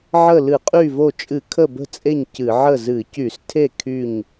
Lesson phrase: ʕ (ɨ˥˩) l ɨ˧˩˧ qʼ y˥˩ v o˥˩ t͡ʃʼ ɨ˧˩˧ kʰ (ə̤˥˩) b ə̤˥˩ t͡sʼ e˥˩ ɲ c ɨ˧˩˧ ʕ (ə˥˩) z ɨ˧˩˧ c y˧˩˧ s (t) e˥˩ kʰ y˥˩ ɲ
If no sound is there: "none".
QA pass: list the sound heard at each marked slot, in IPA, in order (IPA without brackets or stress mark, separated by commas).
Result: ə˥˩, ə˥˩, ə˥˩, tʰ